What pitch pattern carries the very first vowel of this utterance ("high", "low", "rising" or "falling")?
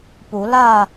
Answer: rising